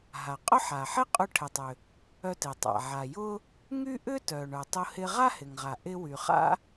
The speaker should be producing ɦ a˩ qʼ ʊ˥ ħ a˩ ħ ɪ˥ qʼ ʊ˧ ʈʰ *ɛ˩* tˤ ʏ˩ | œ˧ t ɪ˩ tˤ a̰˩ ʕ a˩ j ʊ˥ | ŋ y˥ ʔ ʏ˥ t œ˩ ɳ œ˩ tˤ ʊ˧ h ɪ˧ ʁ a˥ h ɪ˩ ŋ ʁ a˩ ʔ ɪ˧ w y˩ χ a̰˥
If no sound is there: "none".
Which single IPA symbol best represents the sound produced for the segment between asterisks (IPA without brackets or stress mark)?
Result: ɪ˩